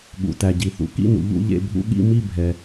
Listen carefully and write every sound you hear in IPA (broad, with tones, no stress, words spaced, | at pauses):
ɠṵ˨tæ˨ɟi˨θṵ˨ kḭ˥˨nṵ˨ ʎṵ˥˨ʎḛ˥˨bʱṵ˥˨ ɠḭ˥˨mi˥˨bʱɛ˨